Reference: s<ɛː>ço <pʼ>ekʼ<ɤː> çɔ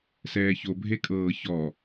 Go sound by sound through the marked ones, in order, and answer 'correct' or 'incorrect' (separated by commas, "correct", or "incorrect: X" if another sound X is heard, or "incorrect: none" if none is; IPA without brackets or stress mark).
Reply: correct, incorrect: bʱ, correct